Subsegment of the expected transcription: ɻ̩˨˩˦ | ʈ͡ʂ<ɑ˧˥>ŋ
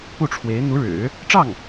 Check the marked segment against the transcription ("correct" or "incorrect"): incorrect